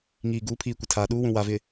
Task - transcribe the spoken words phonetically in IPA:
ŋiː˨ ɡuː˨˦pʰiː˨ kʷɪ˨tʰaː˨ɗuː˦wũ˨ wa˨vɪ˨

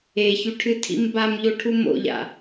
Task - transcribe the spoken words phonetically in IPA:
eçʉʈʰɨtʰḭm bamʎoʈʰu mo̰ʎa̰

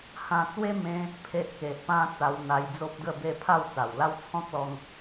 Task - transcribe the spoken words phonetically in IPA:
hã˧t͡swe˦ mẽ˦ | pʰe˦ʔke˨ʔpã˦ t͡sa˧wn̪a˧j d͡zo˦p̚ɡə˥˧be˥˧ pʰa˥˧wt͡sa˨˩wla˦w t͡sʰɔ̃˦k̚lɔ˧ŋ

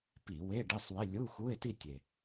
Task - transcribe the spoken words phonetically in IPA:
pi˧˩˧ we˧˥˧ɖe˧˥˧sˤwɪ˧˥˧ lʲu˧˥˧xu˧˥˧e̯ti˥˧ tʲe˨˩

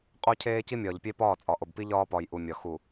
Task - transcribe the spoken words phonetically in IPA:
qʼo˦cʰeː˦ci˦ mʲɒː˨ʎpʲe˦pɒː˦˨t͡sʼɒ˨ ʔo˨bpi˦ ʎɒː˦pɒ˨j ʔu˨mʲɒ˨ xu˨

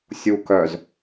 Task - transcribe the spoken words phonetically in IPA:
sʲu kœz

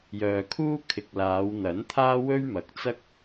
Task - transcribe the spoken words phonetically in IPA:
jœː˨kʰuː˥ kʰɪ˨k̚laː˨˧w n̪ɐ˨˥nt̪ʰaː˥ wɵ˥ɥmɐ˨k̚t͡sɐ˥k̚

